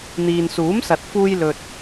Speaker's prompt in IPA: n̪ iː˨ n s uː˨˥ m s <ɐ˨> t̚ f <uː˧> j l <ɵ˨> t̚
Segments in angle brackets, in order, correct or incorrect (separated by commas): correct, correct, correct